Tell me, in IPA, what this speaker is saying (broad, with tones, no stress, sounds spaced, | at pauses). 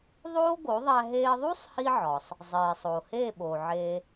ðˤ oː˥ ɡ o˩˥ ðˤ æ˧ ɦ eː˧ ðˤ u˥ sˤ h i˧ ʕ ɒ˩ sˤ | zˤ eː˩ sˤ oː˩ h eː˥˩ ɓ oː˩ ʕ e˧